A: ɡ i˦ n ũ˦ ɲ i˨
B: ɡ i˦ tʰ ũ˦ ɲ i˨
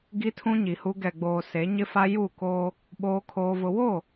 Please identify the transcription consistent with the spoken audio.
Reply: B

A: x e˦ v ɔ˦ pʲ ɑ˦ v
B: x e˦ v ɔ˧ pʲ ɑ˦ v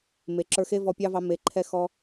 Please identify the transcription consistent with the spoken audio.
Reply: B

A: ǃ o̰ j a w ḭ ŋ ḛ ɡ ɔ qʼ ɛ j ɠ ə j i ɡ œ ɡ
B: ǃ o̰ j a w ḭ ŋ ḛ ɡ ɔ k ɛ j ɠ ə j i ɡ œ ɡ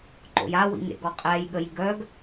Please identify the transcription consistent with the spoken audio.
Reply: A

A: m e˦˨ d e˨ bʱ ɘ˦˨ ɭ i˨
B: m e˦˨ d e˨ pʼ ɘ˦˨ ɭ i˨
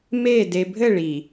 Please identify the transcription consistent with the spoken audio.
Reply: A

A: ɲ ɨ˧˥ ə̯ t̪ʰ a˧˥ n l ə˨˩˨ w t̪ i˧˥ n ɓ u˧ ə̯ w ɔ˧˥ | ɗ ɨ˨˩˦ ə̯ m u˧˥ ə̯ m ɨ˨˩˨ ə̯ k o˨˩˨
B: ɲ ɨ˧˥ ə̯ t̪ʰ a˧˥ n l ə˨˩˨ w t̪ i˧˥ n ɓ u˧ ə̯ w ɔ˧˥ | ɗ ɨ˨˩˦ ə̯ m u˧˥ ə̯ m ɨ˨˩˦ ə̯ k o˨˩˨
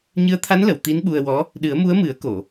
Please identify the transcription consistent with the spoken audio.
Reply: B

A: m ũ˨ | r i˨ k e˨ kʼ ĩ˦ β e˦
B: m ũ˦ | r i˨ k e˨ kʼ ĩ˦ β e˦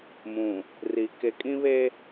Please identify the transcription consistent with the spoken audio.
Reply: A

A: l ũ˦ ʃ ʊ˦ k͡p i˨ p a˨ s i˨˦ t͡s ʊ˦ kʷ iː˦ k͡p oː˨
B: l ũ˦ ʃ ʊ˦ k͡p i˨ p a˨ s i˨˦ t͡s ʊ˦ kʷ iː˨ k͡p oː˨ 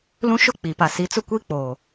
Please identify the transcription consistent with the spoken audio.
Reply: A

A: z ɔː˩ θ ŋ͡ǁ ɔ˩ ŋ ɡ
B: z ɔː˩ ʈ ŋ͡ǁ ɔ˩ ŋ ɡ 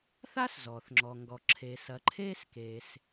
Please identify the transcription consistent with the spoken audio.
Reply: A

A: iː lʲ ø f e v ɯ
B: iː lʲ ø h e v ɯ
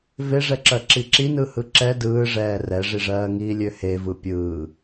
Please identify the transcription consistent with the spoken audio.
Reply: B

